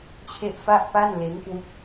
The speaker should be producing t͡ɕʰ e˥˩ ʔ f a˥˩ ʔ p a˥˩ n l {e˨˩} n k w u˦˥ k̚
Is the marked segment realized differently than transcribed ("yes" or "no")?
yes